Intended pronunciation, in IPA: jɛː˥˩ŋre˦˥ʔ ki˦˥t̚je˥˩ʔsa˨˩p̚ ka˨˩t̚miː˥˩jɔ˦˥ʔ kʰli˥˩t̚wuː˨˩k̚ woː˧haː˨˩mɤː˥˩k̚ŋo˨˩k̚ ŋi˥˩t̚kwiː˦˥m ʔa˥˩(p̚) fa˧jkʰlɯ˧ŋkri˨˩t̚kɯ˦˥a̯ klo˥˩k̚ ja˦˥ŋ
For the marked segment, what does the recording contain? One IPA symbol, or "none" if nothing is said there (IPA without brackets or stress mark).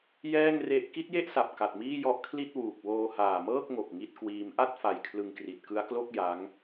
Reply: t̚